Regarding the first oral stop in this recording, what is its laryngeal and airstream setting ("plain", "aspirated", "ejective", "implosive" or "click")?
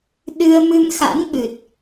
implosive